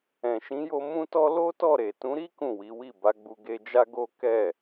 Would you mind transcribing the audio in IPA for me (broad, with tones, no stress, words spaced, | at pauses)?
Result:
ɛ̃˨ʃĩ˨˦jo˧ mũ˦tɔ˦ lo˦tɔ˦˨ɾe˨ tũ˨˦ɾi˦ kũ˦˨wi˨˦wi˦˨ ba˨˦ɡ͡bu˧ɡe˧ d͡ʒa˦ɡo˦ kɛ˦˨